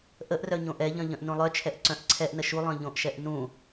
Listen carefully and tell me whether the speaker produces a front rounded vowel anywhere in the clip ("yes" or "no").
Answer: yes